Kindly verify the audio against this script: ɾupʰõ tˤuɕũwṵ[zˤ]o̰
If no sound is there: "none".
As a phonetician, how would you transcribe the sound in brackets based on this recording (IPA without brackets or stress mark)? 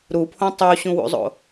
zˤ